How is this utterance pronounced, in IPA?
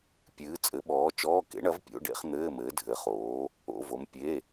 pʲ ɨː˨˥ t͡sʼ ɘ˨˥ ɓ ɔː˨˥ t͡ʃ ɔː˧˥˧ k ḛ˨˥ ɳ ɐ˨˥ v pʲ o̰˧˥˧ ɖ ḛ˧˥˧ χ n̪ ɘː˧˥˧ m ɘː˨˥ dʱ ɘ˨˥ χ oː˨˥ | o̰˧˥˧ v o˨˥ m pʲ e˧˥˧

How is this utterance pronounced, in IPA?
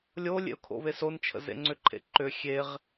lʲ o lʲ ḛ ʊ̯ kʰ o̰ β e s o n t͡ʃʰ ə̰ z ḛ ŋ͡ǀ ʏ ǃʰ ḛ ǃ ʏ xʲ e ʁ

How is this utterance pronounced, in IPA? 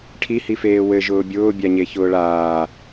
ʈʰ i h i f eː w ɘ ʒ ʊː bʲ ʊː bʲ a ɲ e ç ʊː ɭ aː

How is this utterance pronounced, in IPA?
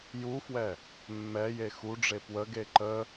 j u f w ɛ | mː ɛ j e x u ɖ͡ʐ e p w ə ɡ e ǃ ə

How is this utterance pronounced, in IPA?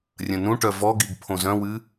rʲ ə̃ n ũ ʈ œ v ɔ ɡ i ɡ pʰ õ z œ̃ w ɨ

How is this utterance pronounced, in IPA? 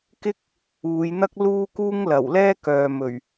k ɪ˥ k̚ | uː˨˧ j n̪ ɐ˥ k̚ l uː˥ k uː˥ ŋ l ɐ˨˩ w l ɛː˥ k œː˨ m ɵ˨˩ ɥ

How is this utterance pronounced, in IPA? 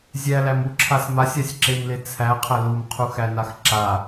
zʲ æ l æ m u ǁʰ a s m a sʲ a sʲ ǁ e m l e t͡sʰ æ qʰ æ l u m qʰ u x æ n a x ǁ a

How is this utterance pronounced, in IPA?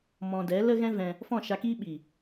m ɔ̃˧ d ɛ˨˦ l ə˦ ɣ ɛ̃˦ v ɛ̃˧ | f ɔ̃˦˨ ʃ a˧ k iː˦ ɓ iː˨

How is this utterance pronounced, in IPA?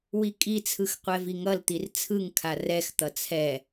w i kʼ i t͡sʰ ɯ x qʷ ɛ v i ŋ ʌ l t̪ i r t͡sʰ ɯ ŋ kʰ a r ɛ x t̪ ʌ t͡sʰ ɛ

